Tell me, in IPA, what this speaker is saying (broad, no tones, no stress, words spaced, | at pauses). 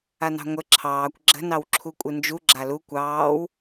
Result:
anɑ̤ŋʷə ǁʰɑːkʷ ɡ͡ǁə̤ nɑwǁʰukʷʼɨnd͡ʒu ɡ͡ǁalu kʷɑːw